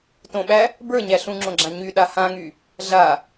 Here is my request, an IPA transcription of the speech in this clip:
t õ ɓ æ | b ə˞ ɲ æ ɬ ũ ŋ͡ǁ õ ɡ͡ǁ ã ɲ y ɗ a h ã ŋ y | ɮ a

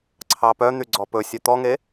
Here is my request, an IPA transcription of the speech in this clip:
ǀʰ ɑ p œ n̪ y ɡ͡ǀ ɔ p ɵ sʲ œ t̪ ɔ ŋ e

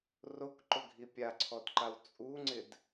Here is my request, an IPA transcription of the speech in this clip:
r o k ǃ ʊ ɡʱ i pʲ a ǀʰ ɔ d ǃ a w t͡sʼ u ŋ͡ǀ ɪ d

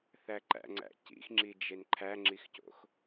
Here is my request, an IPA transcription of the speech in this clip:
θ æ ǃ æ̰ ŋ͡ǀ æ̰ c ḭ x ŋ͡ǁ i d͡ʒ e n ǃʰ æ ŋ͡ǁ i x c o̰ x

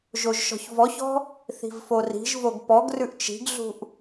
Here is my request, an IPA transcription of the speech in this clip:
ʒ o ʒ ʃ ɔ̤ ç v ɔ ç ɔ̤ | θ i̤ v f o r i̤ ʒ v o ɡ p ɔ ɡ r ʉ ʔ t͡ʃ i̤ ɡ ɮ ṳ ʔ

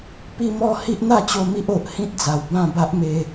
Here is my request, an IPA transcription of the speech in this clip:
p i˦ m ɔ˦ h i˦ ʔ n̪ a˥˧ t͡ɕ o˧ m i˦ ʔ o˨ ʔ h ĩ˦ t̚ d͡z a˨˩ w b ã˥˧ b a˦ ʔ m e˧

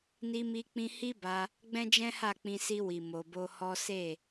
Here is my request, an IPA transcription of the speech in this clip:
n i˧ m i˧ k͡p ĩ˧ h i˦ b a˧ | ɡ͡b ɛ̃˦ d͡ʒ ɛ̃˦ h a˦˨ k͡p ĩ˧ s i˧ w i˨ m o˨ b o˧ h ɔ˦ s e˦˨

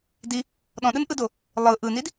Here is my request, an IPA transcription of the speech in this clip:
d i | ɗ ɔ̃ ɗ ɯ n ʔ ɯ d o | lˠ ɯ ʔ ɯ n i d

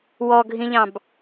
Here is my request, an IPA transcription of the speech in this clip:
w ɔ ɡʱ ĩ ʎ ɑ̃ b

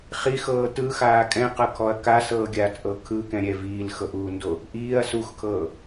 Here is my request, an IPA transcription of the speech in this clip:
χ i x ɤː t ɯ x aː kʼ ɛ̃ q ɤ kʰ ɔ ɐ̯ k a s ɤː ɡʲ aː t ʔ ɤ kʰ ɯ k ɛ̃ ɾʲ ɛ v iː l x ɤ ʔ uː n d o | ʔ iː ɐ̯ s u x kʰ ɤː

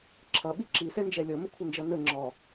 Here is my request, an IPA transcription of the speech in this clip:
ǁʰ ʌ ɓ i ǁ i s ɛ n d͡ʒ ɛ lʲ ɔ m ə kʷʰ ə n d͡ʒ ʌ n ə ŋ͡ǁ ɔ

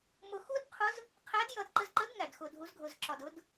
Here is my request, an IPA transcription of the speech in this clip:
m ʊ˧ x u˥ d qʰ ʊ˧˥ z | qʰ æ˧˥ d j ʌ˧ d ǃ ə˧ z ǃ ə˧˥ d ŋ æ˩ d x ʊ˩ dʱ u˩˧ z ɡʱ ʊ˩ z ǁ ɒ˩ d ʊ˩˧ d

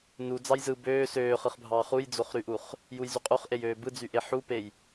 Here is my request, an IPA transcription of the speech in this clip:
n u d͡z ɑ j z ɯ b øː s øː χ ɯ χ bʱ ɑː χ u j d͡z o χ ɾ y ʔ u χ | j u j z y qʼ u χ ʔ e j øː b ɯ d͡z y ʔ e ħ u p e j

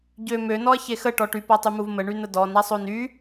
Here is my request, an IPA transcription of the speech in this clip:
ɟ ø m ø n ɔ ɐ̯ ç e x ə ʈ ɔ ʈ y p a tˤ y m u v m ə ɳ y n ə d ɔ n a sˤ o n y

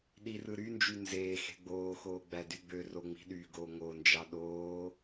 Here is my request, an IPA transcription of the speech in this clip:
ɗ i r ɯ ɾ y n d͡ʒ y n z eː x e̤ ɡ͡b oː x oː ɡ͡b æ d y ɡ͡b ø r o ŋ͡m i̤ ɗ y ɡ oː ŋ o n d͡ʒ ɑ ɗ oː

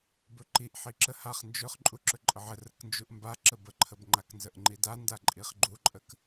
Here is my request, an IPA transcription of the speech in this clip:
b ɵ ǃ i ʔ ħ i ǁ ə h a χ n d͡ʒ ɵ χ ǃʼ u ǁ ɵ ǃʼ ə ʕ ə r ə k n d͡ʒ u ʔ m b a ǁ ə b ə ǃʰ ə b ŋ͡ǃ a k n z ə ʔ ŋ͡ǃ i d a n d a ǃʼ i χ ɡ͡ǃ u ǃʼ ə k

